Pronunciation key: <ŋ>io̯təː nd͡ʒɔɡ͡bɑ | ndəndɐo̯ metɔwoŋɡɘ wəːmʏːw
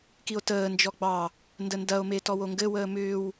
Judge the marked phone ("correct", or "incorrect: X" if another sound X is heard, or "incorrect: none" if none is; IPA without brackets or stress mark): incorrect: k